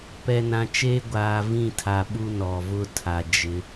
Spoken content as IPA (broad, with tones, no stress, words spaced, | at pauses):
pɛ˨nã˨t͡ʃeː˦ ɡʷaː˨vĩ˦˨ tʰa˨ ɓu˦nɔ˨vʊ˦ tʰa˨ d͡ʒɪ˨˦